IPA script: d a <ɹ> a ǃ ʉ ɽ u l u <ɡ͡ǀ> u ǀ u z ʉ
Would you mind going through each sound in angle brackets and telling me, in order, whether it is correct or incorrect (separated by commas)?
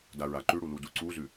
correct, incorrect